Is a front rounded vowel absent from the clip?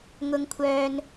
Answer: no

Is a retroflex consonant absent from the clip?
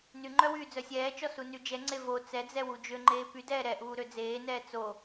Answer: yes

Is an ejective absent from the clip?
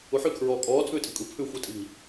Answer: no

